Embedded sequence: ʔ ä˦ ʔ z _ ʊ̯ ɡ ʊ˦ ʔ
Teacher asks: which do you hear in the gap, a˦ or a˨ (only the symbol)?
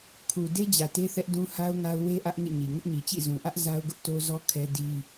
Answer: a˦